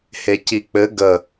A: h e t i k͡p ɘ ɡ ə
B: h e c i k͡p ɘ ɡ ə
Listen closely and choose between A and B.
B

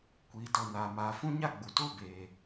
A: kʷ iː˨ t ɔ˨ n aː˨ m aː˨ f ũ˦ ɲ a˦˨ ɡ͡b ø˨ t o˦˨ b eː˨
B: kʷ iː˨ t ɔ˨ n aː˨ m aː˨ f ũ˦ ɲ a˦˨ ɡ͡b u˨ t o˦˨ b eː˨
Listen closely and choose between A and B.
B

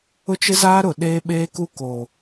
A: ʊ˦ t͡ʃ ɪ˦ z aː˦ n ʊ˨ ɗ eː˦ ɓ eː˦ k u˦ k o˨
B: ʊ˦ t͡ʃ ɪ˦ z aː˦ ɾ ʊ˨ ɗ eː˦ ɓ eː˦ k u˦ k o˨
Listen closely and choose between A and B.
B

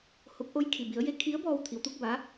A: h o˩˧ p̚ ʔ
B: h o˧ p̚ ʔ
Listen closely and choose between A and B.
B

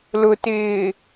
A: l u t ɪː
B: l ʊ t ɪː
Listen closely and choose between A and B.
B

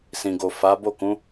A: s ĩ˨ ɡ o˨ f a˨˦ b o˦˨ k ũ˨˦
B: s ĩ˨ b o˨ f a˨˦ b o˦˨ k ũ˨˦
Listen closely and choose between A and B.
A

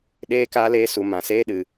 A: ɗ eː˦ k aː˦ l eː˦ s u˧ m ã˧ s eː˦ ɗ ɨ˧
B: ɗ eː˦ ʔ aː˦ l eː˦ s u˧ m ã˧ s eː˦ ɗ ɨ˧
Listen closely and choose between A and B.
A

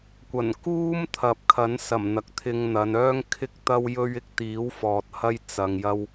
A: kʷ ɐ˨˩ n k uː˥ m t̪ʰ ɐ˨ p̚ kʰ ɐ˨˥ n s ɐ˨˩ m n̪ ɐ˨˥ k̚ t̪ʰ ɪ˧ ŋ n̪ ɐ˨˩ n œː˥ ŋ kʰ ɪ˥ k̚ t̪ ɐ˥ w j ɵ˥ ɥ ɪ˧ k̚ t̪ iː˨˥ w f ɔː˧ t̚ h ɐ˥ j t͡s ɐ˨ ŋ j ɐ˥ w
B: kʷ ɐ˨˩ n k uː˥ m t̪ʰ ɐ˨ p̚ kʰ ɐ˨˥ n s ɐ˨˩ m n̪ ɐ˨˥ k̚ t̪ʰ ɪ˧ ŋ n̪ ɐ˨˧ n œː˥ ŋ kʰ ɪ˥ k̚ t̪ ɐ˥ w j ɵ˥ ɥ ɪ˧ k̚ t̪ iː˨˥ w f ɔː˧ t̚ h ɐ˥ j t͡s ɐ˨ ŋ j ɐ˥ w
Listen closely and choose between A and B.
B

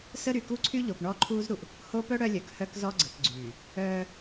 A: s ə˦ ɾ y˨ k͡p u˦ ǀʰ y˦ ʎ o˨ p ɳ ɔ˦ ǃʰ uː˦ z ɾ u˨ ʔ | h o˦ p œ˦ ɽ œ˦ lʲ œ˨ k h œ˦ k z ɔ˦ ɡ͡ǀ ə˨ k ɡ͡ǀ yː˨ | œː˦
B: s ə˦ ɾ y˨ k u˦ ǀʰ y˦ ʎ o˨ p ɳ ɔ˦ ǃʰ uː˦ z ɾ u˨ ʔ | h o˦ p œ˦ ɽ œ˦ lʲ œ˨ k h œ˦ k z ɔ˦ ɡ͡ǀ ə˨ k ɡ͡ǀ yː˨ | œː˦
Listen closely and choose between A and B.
B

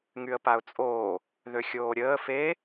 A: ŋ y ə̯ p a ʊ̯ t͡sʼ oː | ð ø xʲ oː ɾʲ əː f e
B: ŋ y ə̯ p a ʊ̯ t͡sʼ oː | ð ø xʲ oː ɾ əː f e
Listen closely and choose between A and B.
A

